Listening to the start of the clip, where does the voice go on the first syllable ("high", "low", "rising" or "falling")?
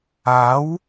rising